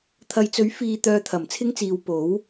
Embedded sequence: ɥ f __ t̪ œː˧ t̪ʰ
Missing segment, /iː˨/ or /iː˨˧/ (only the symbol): iː˨